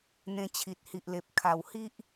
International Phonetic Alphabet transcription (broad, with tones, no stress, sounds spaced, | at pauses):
n̪ ẽ˧ t͡ɕʰ i˨ t̚ h i˨ ʔ l e˨ p̚ kʰ a˨˩ w h i˦ ʔ